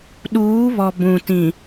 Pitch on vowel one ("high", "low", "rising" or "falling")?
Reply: rising